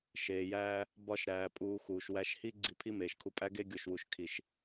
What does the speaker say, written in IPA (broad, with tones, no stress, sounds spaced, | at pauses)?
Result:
ʃ eː˨ j æː˧ | b ɒ˧ ʃ ɾ æː˨ pʼ uː˨ x uː˨ ʃ w æ˧ ʃ h i˦ ɡ͡ǀ i˧ pʰ i˦ m eː˨ ʃ kʰ u˧ pʼ æ˦ ɡ e˦ ɡʲ o˨ ʃ w u˨ ʃ kʰ i˨ ʃ